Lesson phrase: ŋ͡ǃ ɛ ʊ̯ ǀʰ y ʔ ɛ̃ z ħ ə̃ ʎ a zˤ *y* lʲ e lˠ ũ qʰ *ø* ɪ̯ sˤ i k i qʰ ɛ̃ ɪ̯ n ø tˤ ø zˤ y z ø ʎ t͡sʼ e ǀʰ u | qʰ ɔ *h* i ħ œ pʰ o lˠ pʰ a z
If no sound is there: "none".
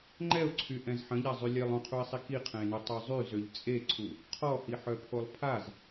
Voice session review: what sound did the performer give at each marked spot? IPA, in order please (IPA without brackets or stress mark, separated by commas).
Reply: y, u, h